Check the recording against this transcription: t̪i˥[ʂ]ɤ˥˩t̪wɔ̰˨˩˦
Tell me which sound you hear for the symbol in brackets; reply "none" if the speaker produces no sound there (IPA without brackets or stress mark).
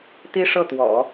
ʂ